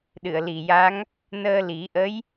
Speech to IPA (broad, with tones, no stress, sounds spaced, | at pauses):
ɗ ɨ˨˩˨ ə̯ l i˨˩ j a˧˥ ŋ | n əː˧ l i˨˩˦ ʔ ə˧˥ j